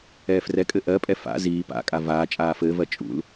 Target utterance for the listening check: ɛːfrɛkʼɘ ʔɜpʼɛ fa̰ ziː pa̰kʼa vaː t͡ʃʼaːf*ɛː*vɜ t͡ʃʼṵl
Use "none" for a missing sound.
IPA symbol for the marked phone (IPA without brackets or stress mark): ɘː